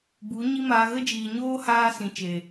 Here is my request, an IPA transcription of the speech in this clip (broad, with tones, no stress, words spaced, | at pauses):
bu˨˦ɲi˦maː˧ ɣə˦d͡ʒiː˨ ɲoː˦haː˧ sĩ˨t͡ʃe˨